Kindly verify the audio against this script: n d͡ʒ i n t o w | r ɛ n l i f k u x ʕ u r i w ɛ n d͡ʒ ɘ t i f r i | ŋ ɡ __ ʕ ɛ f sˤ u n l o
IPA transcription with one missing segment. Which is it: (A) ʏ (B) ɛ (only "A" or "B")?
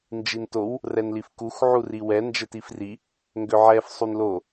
A